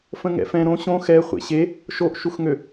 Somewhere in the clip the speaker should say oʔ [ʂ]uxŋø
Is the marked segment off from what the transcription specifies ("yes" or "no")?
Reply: yes